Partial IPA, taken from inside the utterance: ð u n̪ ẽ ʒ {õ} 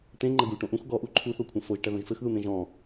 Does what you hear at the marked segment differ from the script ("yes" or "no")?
yes